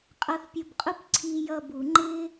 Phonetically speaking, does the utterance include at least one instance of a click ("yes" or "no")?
yes